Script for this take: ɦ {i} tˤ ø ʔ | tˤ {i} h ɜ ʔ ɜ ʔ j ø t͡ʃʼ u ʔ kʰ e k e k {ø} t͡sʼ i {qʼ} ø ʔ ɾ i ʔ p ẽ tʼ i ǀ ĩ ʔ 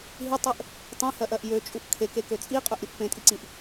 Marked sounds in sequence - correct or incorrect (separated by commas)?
correct, incorrect, correct, correct